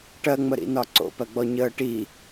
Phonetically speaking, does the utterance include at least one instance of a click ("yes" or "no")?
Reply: yes